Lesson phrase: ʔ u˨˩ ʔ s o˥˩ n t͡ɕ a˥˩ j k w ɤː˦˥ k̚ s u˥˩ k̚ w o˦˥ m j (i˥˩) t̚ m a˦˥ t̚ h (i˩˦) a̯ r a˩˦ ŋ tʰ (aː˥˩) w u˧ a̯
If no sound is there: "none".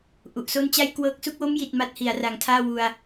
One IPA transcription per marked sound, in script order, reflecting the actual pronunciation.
i˨˩, i˩˦, aː˥˩

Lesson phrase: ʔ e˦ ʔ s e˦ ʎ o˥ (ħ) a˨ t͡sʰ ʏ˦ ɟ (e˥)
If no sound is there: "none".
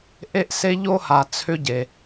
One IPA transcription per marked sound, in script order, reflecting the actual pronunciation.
h, e˩

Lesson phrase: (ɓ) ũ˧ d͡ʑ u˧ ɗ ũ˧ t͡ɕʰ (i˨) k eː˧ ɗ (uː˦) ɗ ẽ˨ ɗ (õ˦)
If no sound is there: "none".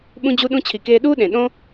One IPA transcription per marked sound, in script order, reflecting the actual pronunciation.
ɓ, i˨, uː˦, õ˦

